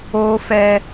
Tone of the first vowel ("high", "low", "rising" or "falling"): high